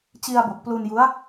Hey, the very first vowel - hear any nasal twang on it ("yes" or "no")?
no